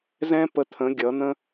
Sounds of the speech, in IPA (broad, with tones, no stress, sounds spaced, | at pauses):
z ɛ̃˦ p ə˧ t̪ʰ ə̃˨˦ ɡʲ ʌ˨˦ n̪ ə̃˦